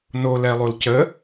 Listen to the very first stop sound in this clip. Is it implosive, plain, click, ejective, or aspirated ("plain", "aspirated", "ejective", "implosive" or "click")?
plain